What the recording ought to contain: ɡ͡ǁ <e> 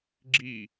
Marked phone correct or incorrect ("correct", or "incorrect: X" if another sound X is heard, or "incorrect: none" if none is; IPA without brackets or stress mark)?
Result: incorrect: i